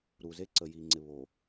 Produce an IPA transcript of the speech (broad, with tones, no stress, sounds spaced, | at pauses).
ɾ u˨ z e˦ ǀ ə˨ j i˨ ŋ͡ǀ ɪ˨ β o˨